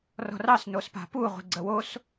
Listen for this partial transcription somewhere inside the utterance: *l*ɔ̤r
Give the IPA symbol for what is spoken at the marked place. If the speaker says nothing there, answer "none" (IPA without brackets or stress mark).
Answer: r